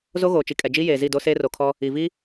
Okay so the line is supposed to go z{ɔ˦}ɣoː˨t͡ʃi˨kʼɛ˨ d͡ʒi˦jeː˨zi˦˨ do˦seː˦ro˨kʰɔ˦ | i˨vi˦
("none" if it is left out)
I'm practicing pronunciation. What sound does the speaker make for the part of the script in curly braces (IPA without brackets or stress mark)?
o˦